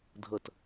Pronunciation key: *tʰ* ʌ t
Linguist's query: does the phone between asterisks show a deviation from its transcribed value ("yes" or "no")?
yes